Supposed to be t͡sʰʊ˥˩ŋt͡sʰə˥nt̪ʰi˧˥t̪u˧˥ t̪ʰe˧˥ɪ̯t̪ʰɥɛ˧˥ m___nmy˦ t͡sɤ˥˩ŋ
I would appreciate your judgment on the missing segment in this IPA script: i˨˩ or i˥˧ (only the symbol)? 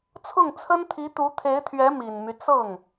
i˨˩